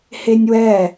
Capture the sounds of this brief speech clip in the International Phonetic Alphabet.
h e nʲ w ɛ

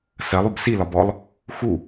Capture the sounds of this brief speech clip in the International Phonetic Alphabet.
s ɜ lˠ u b s i l ɒ b ɔ lˠ | x u

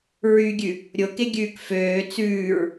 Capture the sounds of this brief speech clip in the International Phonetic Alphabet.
ɹ y ɡʲ ʉ | ɾʲ o k e ɡʲ ʉː k f øː t͡s ʉː ɹ

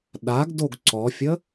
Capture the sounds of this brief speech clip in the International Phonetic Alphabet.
ɗ a ɡ d o ɡ ǀ ɔ fʲ ə

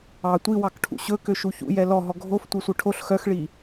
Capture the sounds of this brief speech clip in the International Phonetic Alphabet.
ɑ tʷ i w ɑ k ʈʰ ṵ ɕ ɵ k ø ʃ u ç ṵ j ɛ l ɔ ɦ ɔ ɡʱ o f tʷ œ sʷ œ ʈʰ o ɬ x œ x ɭ i

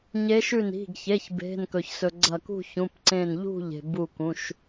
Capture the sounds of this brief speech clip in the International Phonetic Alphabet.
ɲ e˨˦ ʃ ʉ˧˩ n i̤˩˧˩ ɡ ç e˩˧˩ ç b e̤˩˧˩ n k ɵ˩ ç s ɵ˩ ɡ͡ǀ ɐ˧˩ k ṳ˥˨ ç ũ˩˧˩ p ǀ ẽ˧˩ n ʎ ṳ˥˨ ʎ e̤˩ b u˧˩ k ũ˩˧˩ ʃ

